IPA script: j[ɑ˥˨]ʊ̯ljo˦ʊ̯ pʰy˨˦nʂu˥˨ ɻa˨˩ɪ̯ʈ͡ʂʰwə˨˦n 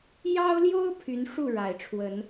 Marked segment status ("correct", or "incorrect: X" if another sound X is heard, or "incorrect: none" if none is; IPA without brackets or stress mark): incorrect: ɑ˦